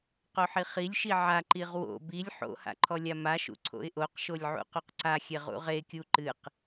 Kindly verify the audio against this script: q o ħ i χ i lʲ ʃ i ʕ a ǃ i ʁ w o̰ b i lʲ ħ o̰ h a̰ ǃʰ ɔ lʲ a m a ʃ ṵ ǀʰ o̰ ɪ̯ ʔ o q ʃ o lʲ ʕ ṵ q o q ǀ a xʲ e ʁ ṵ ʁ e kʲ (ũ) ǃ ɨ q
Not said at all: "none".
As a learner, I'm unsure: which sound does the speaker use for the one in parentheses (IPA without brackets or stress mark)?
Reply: u